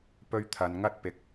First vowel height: mid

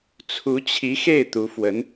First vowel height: high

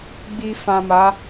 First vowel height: high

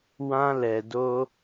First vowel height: low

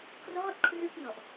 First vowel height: mid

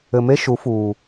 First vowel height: mid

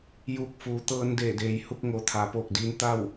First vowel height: high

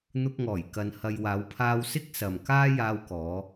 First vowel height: high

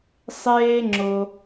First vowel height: mid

